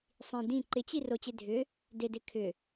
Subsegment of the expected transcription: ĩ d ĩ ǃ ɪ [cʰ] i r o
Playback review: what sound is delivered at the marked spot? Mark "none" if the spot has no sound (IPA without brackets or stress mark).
t͡ɕ